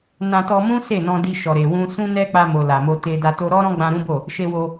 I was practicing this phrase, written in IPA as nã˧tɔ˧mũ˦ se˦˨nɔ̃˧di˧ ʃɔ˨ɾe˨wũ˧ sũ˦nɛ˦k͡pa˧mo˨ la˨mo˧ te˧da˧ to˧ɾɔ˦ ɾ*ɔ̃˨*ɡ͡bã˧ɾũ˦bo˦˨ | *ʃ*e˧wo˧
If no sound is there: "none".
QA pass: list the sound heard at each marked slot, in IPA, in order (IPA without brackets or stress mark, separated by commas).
ɔ̃˦, ʃ